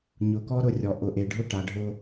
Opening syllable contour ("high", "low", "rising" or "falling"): low